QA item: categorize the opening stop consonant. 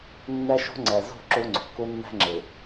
click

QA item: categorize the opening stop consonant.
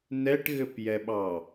plain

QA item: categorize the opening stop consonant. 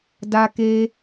plain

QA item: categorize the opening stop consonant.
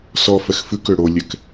plain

